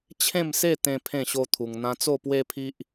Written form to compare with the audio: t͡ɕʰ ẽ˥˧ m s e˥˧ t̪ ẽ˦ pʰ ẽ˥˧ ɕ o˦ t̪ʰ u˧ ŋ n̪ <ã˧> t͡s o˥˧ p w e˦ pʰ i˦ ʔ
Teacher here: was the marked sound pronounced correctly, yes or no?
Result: yes